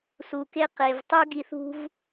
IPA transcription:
su˨ke˦qe˨v tˤu˦ɡi˧θṳ˦v

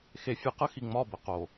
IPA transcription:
xe˨fʲɨ˨ qə˦xi˨ŋ͡mɒ˦˨bə˨ qo˨

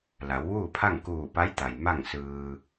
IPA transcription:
la˩˧wʋuː˥˨pʰa˥˨ŋ kuː˧˩pa˧˥jt̪a˩j ma˥˨ŋsɯː˧

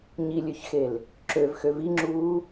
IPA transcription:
ɲilʲøçxel | ǁøvxø viŋ͡ǁuː

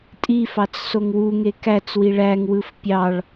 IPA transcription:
tʼifɑt͡s soŋwuŋe kæt͡swi ɭæŋwɯf pʲɑɭ

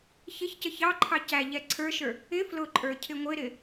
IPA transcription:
çɪçcə çɑǃʰɑ cæʎɛ ǀʰə˞ʃə˞ | ɪ flʊǃʼə˞ cʰɪŋʷɪɾɪ

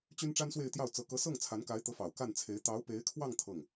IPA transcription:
t͡ɕy˥nʈ͡ʂa˥nswe˥˧ɪ̯t̪jɑ˥˩ʊ̯ t͡sɤ˧˥ kɤ˧˥sɤ˥˩ŋ t͡sʰa˧˥nka˧˥ɪ̯t̪ɤ˧˥fɑ˨˩ʊ̯ ka˥˩nt͡sʰe˧˥ɪ̯ t̪ɑ˧˥ʊ̯pe˧˥ɪ̯kʰwɑ˥˧ŋ t̪ʰɤ˥˩ŋ

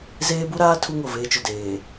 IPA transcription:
zeː˦bu˦ɾaː˦ tʰu˦ŋo˨veː˦t͡ʃʊ˨ deː˨

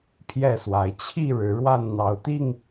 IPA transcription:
pʰjɛ˥˨swa˨˦ɪ̯ t͡ɕʰi˥˨ ɻɻ̩˨˦ɻwa˥˨n n̪ɑ˨˦ʊ̯t̪i˥˨ŋ

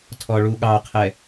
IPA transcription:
tʰɔɭuɠɑqʰɛ

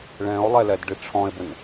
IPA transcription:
ɭɛ̃o̯lˠɛlɛdɖi ʈ͡ʂʰɔ̃e̯bɘn

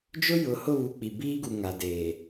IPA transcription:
d͡ʒʊ˦jʊ˨hʊ˦˨βu˨ k͡pi˨biː˦ɡu˨ ŋa˨deː˨

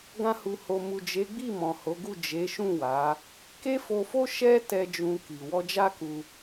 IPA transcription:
ɡã˧hu˨ho˨ mu˨d͡ʒe˨˦ɡ͡bi˦˨ mɔ̃˨ho˨˦ɡu˦˨ d͡ʒe˨˦ʃũ˦˨wa˨˦ | ke˦fo˧fo˦ ʃɛ˦tɛ˧ d͡ʒũ˧ki˨ wɔ˧d͡ʒa˦ku˧

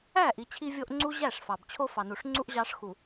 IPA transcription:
æ˦˨ʔi˨ t͡ɕʰi˦vʲo˦ʔ ŋ͡ǀu˦ ʑæ˦˨ʂfɑ˨bt͡ɕʰo˦ fɑ˨nu˨ʂŋ͡ǀu˦ʔ ʑɑ˦ʂxu˨

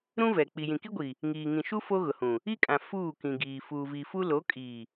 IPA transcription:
ɾũ˦vɛ˨ k͡pi˨jĩ˨ki˦ɡʷi˨ | ŋiː˨ŋĩ˨ʃu˦ fo˦ɣʊ˨hũ˨ | i˦kʼã˨ fuː˦˨kĩ˨ɡiː˨ fuː˨vi˨fu˦ lo˨˦kʼiː˨

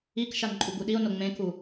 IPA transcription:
ikʃan ǃʼuɡuɗio̯no ŋ͡mẽku

